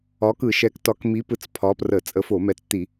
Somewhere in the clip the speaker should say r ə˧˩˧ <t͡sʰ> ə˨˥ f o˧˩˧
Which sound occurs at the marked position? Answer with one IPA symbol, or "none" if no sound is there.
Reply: t͡sʼ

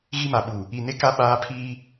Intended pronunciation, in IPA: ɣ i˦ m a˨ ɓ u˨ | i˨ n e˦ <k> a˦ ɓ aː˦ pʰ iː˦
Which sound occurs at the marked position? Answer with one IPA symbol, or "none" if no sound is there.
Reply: k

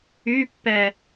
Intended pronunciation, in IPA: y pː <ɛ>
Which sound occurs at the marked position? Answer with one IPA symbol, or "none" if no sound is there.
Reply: ɛ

